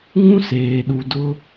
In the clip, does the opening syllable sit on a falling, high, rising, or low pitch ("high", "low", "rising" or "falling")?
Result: high